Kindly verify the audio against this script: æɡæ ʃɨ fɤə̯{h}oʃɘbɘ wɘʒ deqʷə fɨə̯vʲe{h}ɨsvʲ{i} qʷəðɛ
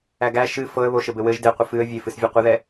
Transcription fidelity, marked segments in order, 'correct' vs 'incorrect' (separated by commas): incorrect, incorrect, incorrect